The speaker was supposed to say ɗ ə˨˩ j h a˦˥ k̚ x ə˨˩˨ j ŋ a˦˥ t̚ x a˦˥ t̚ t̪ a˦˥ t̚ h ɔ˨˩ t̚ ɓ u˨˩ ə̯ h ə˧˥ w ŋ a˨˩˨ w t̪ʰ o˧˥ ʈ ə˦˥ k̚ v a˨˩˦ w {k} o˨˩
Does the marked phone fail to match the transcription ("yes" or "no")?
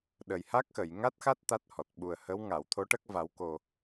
no